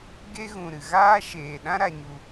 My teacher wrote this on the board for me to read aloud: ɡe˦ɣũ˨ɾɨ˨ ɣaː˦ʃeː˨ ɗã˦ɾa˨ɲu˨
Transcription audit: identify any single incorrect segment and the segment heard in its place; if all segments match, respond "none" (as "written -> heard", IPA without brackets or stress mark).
none